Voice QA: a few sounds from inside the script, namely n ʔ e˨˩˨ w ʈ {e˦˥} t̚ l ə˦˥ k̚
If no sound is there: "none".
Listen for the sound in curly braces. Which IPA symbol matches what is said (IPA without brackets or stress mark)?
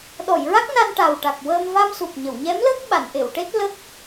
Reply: e˦˥